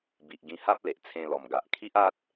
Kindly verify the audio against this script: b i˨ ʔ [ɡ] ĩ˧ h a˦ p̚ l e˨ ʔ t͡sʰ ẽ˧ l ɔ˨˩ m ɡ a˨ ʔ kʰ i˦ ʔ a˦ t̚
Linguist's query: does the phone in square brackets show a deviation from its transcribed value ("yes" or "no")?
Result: no